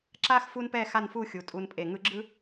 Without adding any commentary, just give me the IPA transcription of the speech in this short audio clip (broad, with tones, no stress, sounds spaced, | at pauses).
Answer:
ǁ a˥ x f u˥ n p ɛ˥˧ x a˥˧ n f u˥˧ xʲ u˩˧ tʼ u˧ n pʼ e˧˩ ŋ ɯ˧ ɡ͡ǁ ɯ˥